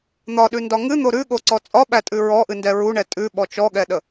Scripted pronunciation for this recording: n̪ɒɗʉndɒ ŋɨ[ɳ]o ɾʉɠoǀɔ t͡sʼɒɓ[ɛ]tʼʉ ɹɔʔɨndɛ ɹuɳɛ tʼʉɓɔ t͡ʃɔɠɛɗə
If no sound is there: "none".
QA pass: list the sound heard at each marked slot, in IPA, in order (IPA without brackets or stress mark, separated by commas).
n̪, æ